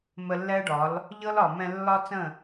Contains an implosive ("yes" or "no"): no